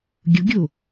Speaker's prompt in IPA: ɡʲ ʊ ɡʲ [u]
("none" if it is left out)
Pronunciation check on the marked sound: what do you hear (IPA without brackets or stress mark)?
o